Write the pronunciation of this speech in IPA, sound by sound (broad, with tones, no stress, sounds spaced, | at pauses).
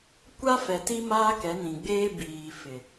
kʷ a˦ f ɛ˨ t i˦ m aː˦ k ɛ˨˦ n ĩ˨ ɡ͡b eː˦ b iː˨ f ɪ˨